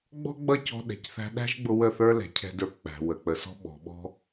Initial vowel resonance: oral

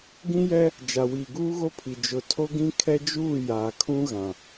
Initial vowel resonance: nasal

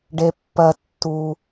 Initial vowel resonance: oral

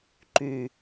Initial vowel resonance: oral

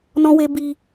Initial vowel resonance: nasal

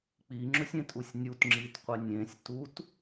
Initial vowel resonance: oral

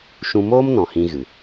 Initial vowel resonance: nasal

